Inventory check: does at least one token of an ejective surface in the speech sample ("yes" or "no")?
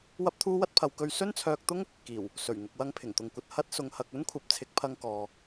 no